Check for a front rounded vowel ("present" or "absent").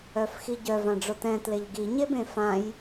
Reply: present